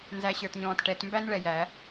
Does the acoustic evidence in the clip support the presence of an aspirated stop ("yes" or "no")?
no